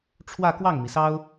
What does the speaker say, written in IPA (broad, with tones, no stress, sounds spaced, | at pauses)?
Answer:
ʈ͡ʂʰ w ä˥˧ k w ɑ˥˩ ŋ m i˩ s ɑ˥ ʊ̯